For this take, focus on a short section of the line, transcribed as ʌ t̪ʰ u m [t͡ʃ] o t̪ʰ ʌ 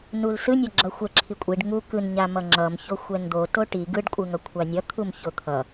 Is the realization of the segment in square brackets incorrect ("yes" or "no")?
yes